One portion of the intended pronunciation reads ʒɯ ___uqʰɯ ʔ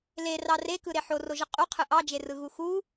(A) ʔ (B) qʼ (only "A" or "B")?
B